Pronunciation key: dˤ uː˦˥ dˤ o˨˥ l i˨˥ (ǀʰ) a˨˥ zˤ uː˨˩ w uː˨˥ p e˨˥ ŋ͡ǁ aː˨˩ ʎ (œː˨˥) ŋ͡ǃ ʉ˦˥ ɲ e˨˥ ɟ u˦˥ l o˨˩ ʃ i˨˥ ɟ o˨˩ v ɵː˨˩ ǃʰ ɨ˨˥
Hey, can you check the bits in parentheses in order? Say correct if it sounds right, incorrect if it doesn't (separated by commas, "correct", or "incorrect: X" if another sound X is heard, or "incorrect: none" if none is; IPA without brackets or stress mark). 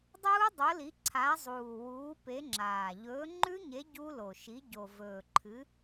correct, incorrect: ɵː˨˥